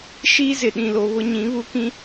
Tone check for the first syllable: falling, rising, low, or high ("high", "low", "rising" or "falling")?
high